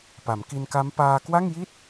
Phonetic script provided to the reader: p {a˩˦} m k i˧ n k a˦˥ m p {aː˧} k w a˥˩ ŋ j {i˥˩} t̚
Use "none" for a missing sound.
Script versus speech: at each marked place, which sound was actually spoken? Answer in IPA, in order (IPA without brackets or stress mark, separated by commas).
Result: a˩˦, aː˧, i˥˩